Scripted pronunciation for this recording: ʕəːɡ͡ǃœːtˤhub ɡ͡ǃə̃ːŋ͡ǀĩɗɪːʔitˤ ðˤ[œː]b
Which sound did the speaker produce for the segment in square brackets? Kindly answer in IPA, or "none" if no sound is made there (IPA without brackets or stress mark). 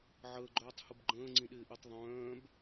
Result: œ̃ː